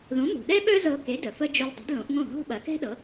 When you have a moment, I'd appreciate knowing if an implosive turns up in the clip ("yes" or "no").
yes